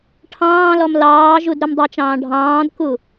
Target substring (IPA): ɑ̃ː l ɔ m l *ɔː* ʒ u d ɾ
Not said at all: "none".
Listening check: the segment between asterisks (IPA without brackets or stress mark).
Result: ɑː